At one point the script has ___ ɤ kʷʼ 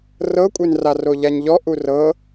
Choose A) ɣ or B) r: B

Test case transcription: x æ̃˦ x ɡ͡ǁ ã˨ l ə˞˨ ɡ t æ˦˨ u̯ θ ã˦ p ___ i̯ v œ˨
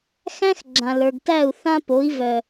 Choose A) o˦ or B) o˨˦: B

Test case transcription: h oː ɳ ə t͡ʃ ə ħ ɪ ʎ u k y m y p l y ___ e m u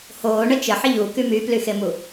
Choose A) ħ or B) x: B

